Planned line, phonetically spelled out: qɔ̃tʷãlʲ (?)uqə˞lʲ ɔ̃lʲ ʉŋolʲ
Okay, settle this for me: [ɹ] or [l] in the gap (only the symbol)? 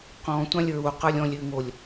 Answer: ɹ